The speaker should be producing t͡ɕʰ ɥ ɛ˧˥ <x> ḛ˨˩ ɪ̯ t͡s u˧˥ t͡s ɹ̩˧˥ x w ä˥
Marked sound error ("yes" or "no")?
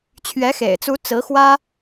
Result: no